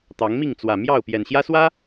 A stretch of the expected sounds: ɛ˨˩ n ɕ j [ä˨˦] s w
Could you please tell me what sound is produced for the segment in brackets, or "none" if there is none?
ä˦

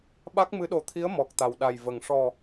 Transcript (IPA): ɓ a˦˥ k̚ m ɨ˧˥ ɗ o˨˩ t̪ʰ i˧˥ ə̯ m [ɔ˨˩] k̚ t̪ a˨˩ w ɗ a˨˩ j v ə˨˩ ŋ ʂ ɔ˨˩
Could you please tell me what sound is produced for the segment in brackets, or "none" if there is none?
ɔ˨˩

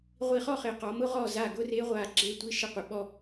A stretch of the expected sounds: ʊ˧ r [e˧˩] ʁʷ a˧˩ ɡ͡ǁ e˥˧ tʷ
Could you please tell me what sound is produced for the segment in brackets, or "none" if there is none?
e˥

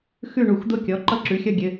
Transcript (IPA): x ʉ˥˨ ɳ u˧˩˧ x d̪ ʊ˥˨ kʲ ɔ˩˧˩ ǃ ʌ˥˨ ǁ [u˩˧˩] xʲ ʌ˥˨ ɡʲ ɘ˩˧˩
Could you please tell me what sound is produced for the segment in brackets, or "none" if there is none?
ʉ˩˧˩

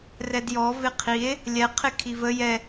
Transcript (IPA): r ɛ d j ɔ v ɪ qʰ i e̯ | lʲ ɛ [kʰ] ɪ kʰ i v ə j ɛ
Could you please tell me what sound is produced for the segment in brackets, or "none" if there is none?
qʰ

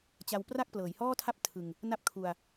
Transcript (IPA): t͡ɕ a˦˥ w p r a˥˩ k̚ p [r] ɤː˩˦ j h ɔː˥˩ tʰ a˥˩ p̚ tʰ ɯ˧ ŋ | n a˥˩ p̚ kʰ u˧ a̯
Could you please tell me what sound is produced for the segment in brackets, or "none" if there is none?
l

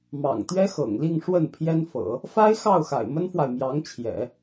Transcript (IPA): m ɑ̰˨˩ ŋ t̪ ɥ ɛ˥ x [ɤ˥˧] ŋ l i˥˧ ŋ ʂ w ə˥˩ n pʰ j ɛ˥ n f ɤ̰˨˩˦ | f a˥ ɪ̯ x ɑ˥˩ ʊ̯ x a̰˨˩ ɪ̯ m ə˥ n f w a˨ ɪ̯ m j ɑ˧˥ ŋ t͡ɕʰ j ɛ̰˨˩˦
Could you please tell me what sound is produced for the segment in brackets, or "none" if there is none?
ɤ̰˨˩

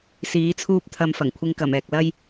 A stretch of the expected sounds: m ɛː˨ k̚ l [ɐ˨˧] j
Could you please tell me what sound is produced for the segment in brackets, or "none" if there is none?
ɐ˥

